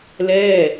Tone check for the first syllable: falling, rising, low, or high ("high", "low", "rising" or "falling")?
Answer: falling